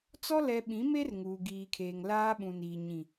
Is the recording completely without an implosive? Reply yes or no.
no